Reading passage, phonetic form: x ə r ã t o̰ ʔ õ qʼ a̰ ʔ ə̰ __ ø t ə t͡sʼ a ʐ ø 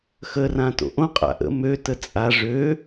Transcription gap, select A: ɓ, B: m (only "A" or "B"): B